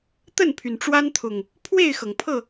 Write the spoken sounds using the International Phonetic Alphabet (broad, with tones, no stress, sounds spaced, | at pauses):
t̪ ə˥˨ n pʰ y˩ n ʈ͡ʂ w a˦ n t̪ʰ ʊ˨˩ ŋ | pʰ w e˥˨ ɪ̯ x ɤ˩ ŋ pʰ ɤ˥˨